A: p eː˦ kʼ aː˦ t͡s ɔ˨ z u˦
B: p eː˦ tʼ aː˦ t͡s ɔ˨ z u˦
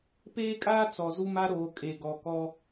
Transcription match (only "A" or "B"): A